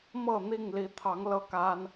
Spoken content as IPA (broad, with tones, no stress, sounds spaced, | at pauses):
m ɤ˥˨ n̪ i˥˨ ŋ l i˨˦ t̪ʰ ɑ˨˦ ŋ l ɤ˥˨ k a˦ n